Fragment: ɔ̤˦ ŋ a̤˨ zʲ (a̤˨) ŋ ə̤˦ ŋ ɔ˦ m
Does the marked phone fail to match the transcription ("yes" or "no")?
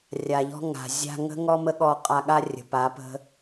yes